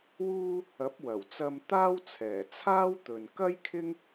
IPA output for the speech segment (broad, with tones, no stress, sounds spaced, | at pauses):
w uː˧ | ɐ˨˥ p̚ w ɐ˨˩ w t͡s ɐ˧ m t̪ aː˥ w t͡sʰ ɛː˨˩ t͡sʰ aː˥ w t̪ ɵ˨ n k ɐ˥ j kʰ ɪ˥ ŋ